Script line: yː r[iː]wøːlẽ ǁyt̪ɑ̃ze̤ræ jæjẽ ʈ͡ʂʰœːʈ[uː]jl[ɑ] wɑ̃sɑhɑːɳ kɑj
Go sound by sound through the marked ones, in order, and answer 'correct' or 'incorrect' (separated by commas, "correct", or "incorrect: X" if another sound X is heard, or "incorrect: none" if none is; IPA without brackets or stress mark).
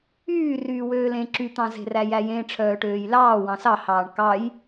incorrect: yː, incorrect: øː, incorrect: ɑː